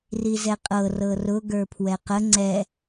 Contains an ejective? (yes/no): yes